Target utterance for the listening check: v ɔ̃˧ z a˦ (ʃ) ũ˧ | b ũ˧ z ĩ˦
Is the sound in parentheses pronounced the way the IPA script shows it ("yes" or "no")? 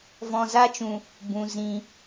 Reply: no